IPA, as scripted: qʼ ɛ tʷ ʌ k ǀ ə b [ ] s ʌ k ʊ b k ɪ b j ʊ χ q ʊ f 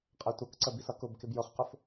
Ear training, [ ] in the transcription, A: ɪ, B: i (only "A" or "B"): B